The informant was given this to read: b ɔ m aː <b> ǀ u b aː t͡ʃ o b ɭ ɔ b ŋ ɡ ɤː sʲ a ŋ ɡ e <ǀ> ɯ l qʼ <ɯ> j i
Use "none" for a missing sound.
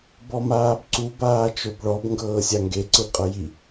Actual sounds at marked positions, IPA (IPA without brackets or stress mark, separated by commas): b, ǀ, ɤ